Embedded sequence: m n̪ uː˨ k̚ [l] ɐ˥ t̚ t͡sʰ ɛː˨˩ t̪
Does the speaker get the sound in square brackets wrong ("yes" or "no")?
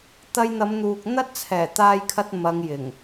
yes